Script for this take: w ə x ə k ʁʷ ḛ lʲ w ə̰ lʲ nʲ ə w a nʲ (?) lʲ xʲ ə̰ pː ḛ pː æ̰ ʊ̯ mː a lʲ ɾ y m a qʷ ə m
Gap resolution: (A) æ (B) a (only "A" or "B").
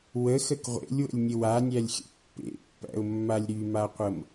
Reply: A